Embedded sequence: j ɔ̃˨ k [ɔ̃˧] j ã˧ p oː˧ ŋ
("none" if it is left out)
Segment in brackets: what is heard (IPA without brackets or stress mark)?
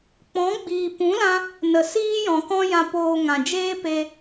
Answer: ɔ̃˦